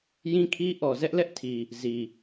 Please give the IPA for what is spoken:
jĩ˦kʰi˦ ʔɔ˨zɛ˦ʔlɛ˦ʔtʰi˨ | zi˨

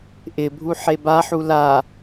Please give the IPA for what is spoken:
ʔɪbʱu ħebaħu la

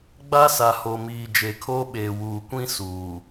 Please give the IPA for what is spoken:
ɡ͡ba˦sa˨ho˨miː˨ d͡ʒe˨kʰoː˦ɓeː˨ wuː˨kʷĩ˦ suː˨

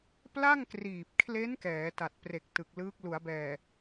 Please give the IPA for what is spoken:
pla˥˩ŋkriː˨˩p̚kʰle˦˥n kɛː˩˦ta˨˩t̚pre˨˩k̚ tɯ˨˩k̚lɯː˦˥k̚ lu˩˦a̯bɛː˨˩

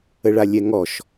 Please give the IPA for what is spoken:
əɭalʲɛŋɔʃ

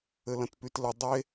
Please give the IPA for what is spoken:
ɘlɐ̃tpytlə dˤe

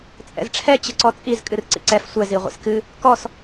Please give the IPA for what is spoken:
t͡sʼɛ̰zʈ͡ʂʰɛ t͡ɕɨǀɔt͡sʼiz kʼɨrǀḭǀɛf sʷɛ ziʁʷḭskɨ | kɔs

